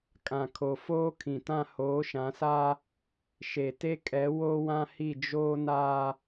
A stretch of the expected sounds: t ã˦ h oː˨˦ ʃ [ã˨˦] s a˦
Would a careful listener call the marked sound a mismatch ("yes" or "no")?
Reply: no